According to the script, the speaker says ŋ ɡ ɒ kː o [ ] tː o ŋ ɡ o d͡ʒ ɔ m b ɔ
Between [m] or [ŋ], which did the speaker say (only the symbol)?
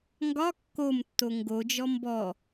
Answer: m